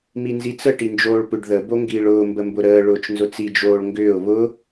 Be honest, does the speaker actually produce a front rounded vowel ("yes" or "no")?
yes